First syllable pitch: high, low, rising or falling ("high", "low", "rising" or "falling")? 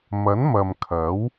rising